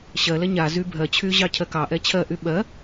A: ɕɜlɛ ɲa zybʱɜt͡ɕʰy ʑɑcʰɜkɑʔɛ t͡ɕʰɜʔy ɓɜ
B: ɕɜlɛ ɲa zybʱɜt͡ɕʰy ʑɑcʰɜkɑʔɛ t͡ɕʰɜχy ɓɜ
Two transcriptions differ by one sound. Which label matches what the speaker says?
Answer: A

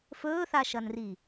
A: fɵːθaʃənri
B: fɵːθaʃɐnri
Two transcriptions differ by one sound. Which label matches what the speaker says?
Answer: B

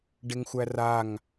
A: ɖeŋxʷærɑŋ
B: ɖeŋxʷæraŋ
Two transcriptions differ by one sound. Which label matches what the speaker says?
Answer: B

